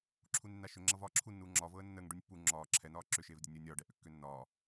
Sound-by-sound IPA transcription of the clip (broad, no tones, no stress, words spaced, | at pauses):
ǁʰunenːaʃʏ ŋ͡ǁʌvɒːǁʰunːuː ŋ͡ǁɒːvɤːə̯ nːəːŋ ɖunʲpːu ŋ͡ǁɒː ǁʰɛnɒː ǁʏʃeːvdʲɛ nʲəːnʲɒːɖɛ ʔʏkːʏːnːɒː